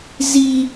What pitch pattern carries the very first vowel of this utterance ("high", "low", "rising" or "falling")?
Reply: high